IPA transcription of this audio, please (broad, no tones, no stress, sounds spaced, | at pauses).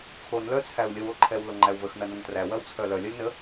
kʰ o n l œ t͡sʰ æ u̯ lʲ ə w o ǃʰ ɛ w l o ŋ͡ǃ æ u̯ v ə x n ɐ n ɐ n t r æ w ɐ w t͡sʰ œ l œ lʲ ɐ lʲ n ə